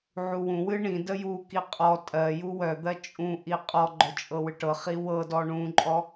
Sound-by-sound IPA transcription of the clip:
ʕuwũwɨ ɳĩ dəjuki qʼɔ tʼɜju wœd̪ɜ t͡ʃʼũʔi qʼɔɡ͡ǃœ t͡ʃʼɤwɨʈɤχi wɤdɔ ɳũǃʼɔ

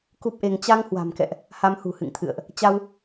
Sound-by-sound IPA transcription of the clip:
ku˦˥p̚ʔe˧ŋ t͡ɕa˧ŋhwa̤˨˩mkɛ̰˧˨ʔ | ha˧mhṳ˨˩hɨ̰˧˨ŋt̪ʰɨ̰˧˨ə̯ʔ | t͡ɕa˧w

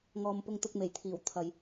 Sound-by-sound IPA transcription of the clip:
ŋɔː˨mpʊ˧ŋt̪ʊ˧k̚ me˨˩jt̪ʰiː˨˩w t̪ʰɐ˨j

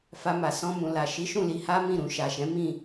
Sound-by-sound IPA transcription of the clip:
fa˧ma˨ sɔ̃˧mũ˨la˨ ʃi˨˦ʃũ˦˨li˧ ha˦mĩ˦˨ɾũ˧ ʃa˨ʃɛ̃˨˦mĩ˦˨

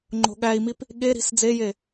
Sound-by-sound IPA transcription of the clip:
ŋ͡ǃo̤ɠæi̯mip | ɠeɾi̤s d͡zeje

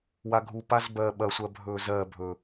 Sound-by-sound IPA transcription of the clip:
waɡʱu pazbɜːɓɐsʷɜ bʱɵːzɜbʱɵ

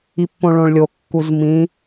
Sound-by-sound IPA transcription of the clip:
ipːõɭõɭlʲo kːuzmĩ

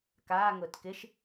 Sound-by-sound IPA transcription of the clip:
kaːŋʊːt kɪʃ

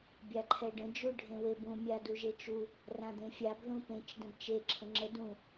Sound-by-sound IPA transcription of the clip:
bʲaǃʰɛɖə̃ d͡ʒuɖʱẽwebũ mʲaduʒet͡ʃu | rãd̪ẽfʲab ðũpẽt͡ʃ də̃bt͡ʃe ǁʰə̃ŋ͡ǁə dũ

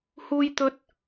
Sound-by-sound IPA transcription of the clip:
huː˧jt̪ɵ˧t̚

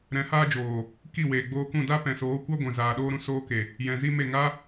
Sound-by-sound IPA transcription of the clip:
ɾɛ̃˨˦haː˦ d͡ʒoː˨ | ki˦˨weː˨ ɡ͡boː˧kũ˦˨ da˦pɛ̃˨soː˨˦ kʷa˦ɡʷɛ̃˨zaː˨ ɗoː˦ɾũ˧soː˦ke˨ | jɛ̃˨zi˦me˦˨ ŋa˦

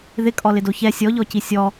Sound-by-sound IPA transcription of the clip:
ðɪkʼɔlɪdo çɛ sʲɔʎɔci sʲɔ

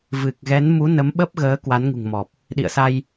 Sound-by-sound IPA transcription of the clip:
vɨ˨˩k̚ ɣɛ˨˦nmu˨˦ nə˨˦mɓə˦˥p̚ ɣəː˨˦ kwa˨˦nŋṳ˨˩ŋmɔ˨˩p̚ | ɗḭ˧˨ə̯sa˧j

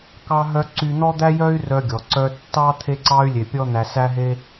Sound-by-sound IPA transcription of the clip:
kɑ˧ɦœ˧ ǀy˧n̪ɔ˥ d̪æ˥jœ˥y̯rœ˧ ɡʲɔ˩ǀœ˧tːɑ˥ t̪ʰe˧ǀɑ˧y̯ lʲe˧pʲɔ˥ n̪æ˧sæ˥ɦe˥

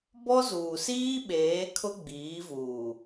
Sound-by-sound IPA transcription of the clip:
bɔ˦zuː˨siː˦ɓeː˨˦ kʰʊ˦ɡ͡biː˨˦vuː˨

